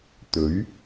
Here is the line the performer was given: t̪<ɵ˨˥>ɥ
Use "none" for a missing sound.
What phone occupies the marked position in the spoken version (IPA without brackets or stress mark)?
ɵ˨˥